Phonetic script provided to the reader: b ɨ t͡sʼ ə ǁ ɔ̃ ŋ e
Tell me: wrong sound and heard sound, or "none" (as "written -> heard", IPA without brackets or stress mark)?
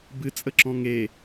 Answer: none